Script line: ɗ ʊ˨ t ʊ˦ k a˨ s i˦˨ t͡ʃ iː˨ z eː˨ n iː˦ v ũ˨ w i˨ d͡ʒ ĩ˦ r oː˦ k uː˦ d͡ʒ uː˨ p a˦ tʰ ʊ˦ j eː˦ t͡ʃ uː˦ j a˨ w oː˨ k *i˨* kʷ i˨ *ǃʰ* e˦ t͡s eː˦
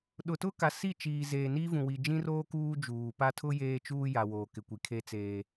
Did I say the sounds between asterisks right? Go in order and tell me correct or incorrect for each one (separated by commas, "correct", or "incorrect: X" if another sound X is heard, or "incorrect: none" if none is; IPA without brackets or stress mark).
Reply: incorrect: ɪ˨, incorrect: kʰ